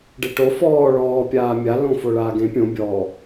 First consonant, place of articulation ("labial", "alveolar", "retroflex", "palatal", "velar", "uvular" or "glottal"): retroflex